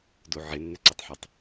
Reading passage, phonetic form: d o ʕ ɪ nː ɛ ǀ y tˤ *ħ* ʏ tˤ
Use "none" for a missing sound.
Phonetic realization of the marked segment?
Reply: ħ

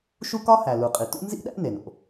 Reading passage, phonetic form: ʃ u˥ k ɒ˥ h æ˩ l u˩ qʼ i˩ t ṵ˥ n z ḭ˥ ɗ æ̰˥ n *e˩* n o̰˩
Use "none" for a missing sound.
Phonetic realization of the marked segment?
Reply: e˩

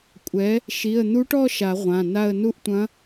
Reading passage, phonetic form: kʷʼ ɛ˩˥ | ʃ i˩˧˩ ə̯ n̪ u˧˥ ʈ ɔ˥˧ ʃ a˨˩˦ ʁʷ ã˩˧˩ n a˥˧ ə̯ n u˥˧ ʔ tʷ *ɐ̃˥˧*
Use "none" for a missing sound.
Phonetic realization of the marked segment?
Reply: ɐ̃˧˥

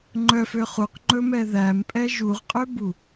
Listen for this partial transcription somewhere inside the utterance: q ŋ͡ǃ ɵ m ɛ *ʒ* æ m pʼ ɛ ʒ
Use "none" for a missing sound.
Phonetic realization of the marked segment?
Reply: ð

